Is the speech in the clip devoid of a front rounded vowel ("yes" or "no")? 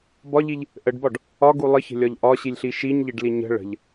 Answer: yes